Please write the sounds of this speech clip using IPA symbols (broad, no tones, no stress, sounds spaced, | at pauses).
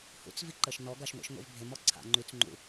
h ṵ t͡s v i ǃ ə ʃ n ɔ ɡ a ʃ ŋʷ ḭ ʃ ŋʷ ḭ v bʱ e m ɔ ǀʰ a̰ ŋ͡ǃ y t͡s ŋ͡ǃ ṵ